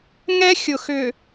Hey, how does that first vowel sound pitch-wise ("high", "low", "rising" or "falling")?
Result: high